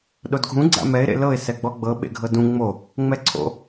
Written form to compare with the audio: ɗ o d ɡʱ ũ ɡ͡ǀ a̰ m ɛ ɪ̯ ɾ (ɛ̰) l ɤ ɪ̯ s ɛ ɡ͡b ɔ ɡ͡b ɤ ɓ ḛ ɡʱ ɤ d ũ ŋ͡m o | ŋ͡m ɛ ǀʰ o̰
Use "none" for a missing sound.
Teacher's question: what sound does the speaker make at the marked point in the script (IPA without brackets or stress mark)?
ḛ